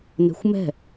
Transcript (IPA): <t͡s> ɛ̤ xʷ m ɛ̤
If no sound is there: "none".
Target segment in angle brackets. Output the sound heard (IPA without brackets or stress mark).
n